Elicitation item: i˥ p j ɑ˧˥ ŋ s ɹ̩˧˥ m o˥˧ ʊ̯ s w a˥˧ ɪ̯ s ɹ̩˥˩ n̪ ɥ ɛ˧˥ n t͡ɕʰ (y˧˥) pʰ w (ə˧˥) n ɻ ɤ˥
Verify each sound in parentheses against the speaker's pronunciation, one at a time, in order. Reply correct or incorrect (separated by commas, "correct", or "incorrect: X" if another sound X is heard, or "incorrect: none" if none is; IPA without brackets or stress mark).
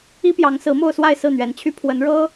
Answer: incorrect: y˥, correct